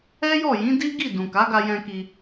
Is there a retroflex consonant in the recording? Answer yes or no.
no